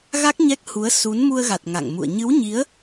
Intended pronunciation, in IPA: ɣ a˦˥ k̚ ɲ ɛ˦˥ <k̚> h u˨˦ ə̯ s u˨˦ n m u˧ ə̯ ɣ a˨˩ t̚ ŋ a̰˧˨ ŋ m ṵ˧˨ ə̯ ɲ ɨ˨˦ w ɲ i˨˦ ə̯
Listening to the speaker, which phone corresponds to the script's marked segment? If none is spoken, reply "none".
k̚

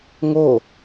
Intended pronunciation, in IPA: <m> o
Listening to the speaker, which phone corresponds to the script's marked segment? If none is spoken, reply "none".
ŋ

